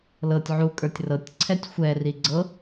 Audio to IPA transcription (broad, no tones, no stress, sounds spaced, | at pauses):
l ɤ tʲ ʕ u kʼ ə˞ tʲ r ɤ tʲ ǀʰ ɛ tʲ xʷ ɛ r i ɡ͡ǀ ɤ